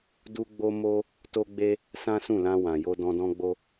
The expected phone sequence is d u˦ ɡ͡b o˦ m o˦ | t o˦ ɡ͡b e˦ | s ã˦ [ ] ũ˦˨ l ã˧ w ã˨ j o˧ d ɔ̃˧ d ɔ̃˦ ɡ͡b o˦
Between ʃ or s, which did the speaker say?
s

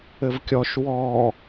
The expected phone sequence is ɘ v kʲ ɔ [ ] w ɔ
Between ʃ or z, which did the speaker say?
ʃ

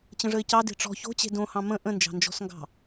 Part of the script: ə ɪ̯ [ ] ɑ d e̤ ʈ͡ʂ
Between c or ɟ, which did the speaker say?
c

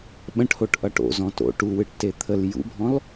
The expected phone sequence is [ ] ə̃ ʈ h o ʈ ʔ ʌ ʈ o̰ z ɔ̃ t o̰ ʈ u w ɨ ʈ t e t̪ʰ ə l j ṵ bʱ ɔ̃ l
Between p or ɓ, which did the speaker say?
ɓ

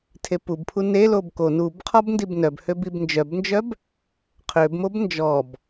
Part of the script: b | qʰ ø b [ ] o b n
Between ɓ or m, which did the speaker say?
m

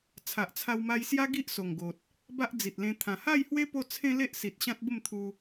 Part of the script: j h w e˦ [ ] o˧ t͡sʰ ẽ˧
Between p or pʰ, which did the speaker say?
p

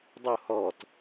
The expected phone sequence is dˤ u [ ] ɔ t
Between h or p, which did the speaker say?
h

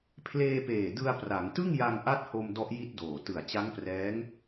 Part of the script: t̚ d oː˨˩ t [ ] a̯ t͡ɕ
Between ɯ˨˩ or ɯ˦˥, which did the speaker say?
ɯ˨˩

